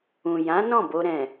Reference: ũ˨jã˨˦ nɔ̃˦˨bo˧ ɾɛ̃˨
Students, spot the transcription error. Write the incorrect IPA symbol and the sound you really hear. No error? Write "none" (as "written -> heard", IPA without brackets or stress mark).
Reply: none